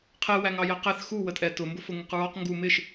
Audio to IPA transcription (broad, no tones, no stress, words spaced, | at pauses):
qʰɛ wæŋɑjæqæθ xu wətʼɛtʊ mbʊfʊŋɪqɹɒq ŋɡu mɪʃ